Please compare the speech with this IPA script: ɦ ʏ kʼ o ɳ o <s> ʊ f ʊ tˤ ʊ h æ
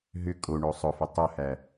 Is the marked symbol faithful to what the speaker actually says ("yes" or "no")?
no